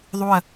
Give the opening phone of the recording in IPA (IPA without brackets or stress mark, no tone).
ðˤ